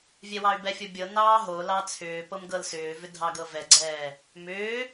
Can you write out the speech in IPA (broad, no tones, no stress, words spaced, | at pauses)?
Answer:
vʲɛwɑy̯bɛfʲo bʲɤnɑː ɦolɑ t͡sʰʏː pɤmɡɤlsʏːvʏ dʱɑɡɤvɛɡ͡ǀɛː | mʏː